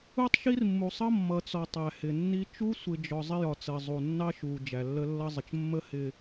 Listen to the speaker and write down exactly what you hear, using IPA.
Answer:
u˦ tˤ ʃ i˦ r mː u˨ sˤ ʌ˦ mː ʌ˨ t͡s ɔ˨ tˤ æ˨ h ɪ˨ nː i˦ t͡ʃ u˦ sʷ ɪ˨ d͡ʒ ɔ˨ zˤ ɪ˦ j ɒ˨ t͡s ɜ˨ zˤ u˨ nː ɑ˦ ʃ u˨ d͡ʒ æ˨ lː ə˦ lː ʌ˦ zˤ ə˨ t͡ʃ mː ə˦ h ɪ˨

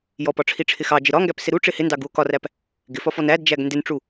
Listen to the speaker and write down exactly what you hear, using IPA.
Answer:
j ɔ p ɒ ʈ͡ʂʰ i ʈ͡ʂʰ ɪ x ɑ d͡ʒ ɪ ɾ ɒ ŋ ɡ æ p s ɪ ɾ u ʈ͡ʂ ɪ h ɪ n d ɑ ɡ u o̯ k ɒ r æ p | ɡ ɪ f ɒ f ɔ n æ d d͡ʒ æ ɡ n d ɪ n ʈ͡ʂ u

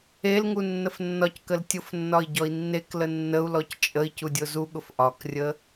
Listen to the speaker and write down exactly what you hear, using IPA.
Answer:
e l ŋ u nː ə f nː ɒ c k ə l tʲ ʊ f nː ɒ i̯ ɟ ɔ i̯ nː e k l ə nː ə u̯ l ɔ c t͡ʃʼ ə i̯ c u dʲ ʊ z u ɠ ʊ f ʔ ɒ k rʲ ə

